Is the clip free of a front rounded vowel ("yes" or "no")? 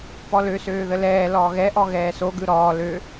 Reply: no